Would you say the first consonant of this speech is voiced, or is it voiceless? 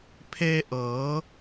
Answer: voiceless